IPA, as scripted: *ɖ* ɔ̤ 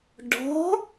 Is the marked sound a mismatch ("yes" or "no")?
no